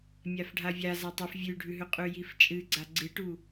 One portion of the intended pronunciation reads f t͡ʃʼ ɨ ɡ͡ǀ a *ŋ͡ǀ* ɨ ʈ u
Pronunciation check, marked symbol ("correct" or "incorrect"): incorrect